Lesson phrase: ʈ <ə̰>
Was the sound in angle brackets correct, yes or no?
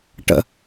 yes